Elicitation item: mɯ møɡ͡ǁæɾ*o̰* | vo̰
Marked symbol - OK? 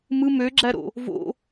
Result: yes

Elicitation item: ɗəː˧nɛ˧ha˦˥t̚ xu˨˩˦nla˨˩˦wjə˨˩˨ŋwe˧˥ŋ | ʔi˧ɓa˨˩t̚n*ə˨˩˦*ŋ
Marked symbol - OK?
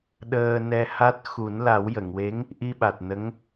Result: no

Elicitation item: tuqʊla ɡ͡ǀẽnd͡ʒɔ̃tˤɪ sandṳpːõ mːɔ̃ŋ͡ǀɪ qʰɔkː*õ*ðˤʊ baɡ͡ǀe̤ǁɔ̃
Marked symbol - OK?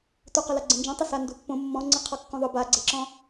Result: yes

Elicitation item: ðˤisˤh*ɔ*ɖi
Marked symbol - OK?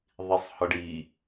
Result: yes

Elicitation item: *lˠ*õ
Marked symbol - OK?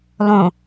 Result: yes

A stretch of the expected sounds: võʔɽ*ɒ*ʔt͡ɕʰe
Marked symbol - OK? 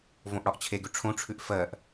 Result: yes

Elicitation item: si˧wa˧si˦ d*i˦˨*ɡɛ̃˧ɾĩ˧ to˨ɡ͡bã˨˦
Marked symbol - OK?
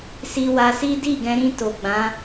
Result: yes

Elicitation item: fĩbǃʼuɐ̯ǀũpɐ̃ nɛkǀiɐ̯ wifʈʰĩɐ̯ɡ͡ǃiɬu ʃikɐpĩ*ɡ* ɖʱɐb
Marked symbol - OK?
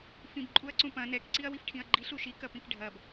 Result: no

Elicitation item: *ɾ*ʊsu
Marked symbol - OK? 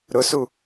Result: yes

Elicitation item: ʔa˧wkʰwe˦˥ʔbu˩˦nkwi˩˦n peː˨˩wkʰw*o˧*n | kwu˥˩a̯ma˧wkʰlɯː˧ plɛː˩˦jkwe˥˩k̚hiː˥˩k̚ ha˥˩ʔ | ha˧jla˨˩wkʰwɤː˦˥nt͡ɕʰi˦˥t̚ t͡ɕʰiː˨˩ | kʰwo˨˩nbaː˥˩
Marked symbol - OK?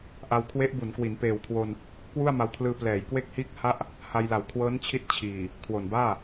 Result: yes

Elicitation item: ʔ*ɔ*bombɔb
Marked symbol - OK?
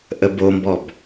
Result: no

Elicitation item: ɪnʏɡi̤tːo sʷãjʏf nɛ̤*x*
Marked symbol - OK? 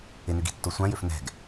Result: no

